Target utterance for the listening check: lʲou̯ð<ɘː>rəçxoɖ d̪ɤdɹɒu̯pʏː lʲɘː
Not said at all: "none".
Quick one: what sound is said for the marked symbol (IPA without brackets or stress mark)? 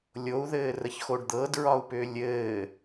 ɘː